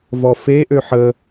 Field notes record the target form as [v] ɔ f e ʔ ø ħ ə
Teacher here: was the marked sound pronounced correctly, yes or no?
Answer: yes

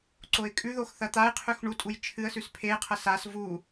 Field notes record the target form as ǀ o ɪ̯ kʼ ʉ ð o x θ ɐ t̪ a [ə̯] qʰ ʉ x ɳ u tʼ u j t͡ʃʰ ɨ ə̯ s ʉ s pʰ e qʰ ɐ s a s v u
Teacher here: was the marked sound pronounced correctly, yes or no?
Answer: no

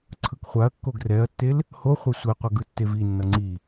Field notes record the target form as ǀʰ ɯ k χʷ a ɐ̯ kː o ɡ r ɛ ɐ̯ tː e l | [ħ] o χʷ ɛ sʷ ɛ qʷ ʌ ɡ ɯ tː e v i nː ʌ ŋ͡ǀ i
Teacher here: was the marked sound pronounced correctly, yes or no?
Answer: no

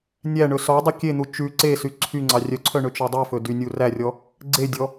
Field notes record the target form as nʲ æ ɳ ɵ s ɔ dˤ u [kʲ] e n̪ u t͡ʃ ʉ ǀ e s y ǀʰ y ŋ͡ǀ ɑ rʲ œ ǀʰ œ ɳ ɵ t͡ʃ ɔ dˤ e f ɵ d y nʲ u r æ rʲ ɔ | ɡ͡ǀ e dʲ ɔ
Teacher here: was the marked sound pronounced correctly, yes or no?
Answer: yes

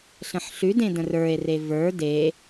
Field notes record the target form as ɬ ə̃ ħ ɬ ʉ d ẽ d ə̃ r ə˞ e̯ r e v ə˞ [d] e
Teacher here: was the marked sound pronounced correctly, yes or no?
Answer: yes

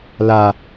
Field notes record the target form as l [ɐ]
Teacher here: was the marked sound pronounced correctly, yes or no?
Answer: no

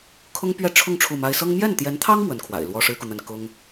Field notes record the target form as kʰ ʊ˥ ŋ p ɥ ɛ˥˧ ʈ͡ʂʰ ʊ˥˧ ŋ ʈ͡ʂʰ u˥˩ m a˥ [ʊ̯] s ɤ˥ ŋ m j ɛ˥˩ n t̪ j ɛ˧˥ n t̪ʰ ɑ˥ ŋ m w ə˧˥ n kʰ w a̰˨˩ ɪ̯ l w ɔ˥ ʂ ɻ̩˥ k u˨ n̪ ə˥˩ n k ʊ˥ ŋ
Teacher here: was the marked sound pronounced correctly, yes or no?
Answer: no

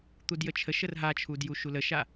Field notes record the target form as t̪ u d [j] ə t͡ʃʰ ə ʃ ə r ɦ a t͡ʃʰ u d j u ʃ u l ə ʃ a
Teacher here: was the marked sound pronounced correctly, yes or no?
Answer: yes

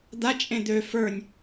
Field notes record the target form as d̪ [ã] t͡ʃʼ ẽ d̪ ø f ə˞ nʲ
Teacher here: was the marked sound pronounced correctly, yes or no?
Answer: no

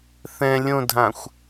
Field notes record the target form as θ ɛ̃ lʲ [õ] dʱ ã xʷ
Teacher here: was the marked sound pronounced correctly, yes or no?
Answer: yes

